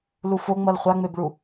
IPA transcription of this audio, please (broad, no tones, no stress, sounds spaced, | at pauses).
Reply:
l u f o ŋ͡m ʌ l χʷ a ŋ͡m e b ɭ u